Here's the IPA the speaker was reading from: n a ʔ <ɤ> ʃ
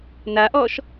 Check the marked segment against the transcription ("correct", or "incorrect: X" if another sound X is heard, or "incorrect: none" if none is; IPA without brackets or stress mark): incorrect: ɔ